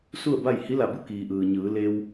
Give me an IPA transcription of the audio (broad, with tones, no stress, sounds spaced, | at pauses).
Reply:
s u˥˨ ə̯ b a˥˨ j h i˧˥ l a˧˩ b u˥˨ k iː˩ ʔ ɯː˩ ɲ ɯː˩˧ l e˧ w